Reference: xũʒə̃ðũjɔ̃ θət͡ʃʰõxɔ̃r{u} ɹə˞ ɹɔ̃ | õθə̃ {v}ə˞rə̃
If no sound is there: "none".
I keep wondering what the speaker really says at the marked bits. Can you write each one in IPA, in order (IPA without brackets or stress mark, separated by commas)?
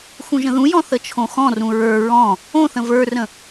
ũ, v